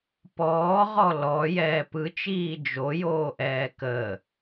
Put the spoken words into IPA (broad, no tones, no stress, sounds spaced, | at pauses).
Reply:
p ɔː ʁ ɔ l ɔ j ɛː p ɯ t͡ʃ iː d͡ʒ o j oː ʔ ɛː k əː